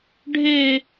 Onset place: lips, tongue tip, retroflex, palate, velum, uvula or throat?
retroflex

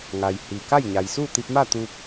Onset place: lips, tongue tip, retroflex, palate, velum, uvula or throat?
velum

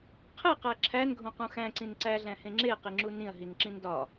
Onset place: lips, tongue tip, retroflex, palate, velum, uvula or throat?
uvula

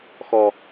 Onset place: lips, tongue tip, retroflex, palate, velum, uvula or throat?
velum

